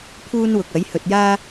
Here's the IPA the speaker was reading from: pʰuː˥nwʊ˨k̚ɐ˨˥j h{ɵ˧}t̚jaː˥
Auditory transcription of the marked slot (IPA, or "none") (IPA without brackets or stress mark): ɵ˨